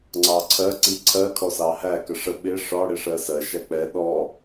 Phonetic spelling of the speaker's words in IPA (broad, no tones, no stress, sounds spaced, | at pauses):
ŋ͡ǀ ɑ ǀʰ ɜ ǀ i ǀʰ ɜ kʰ ɔ s ɑ h æ k ə ʂ ə ɓ ɪ ʂ ɒ ɽ ɪ ʂ ɜ s ɜ ʃ æ k͡p ɛ ɗ ɔ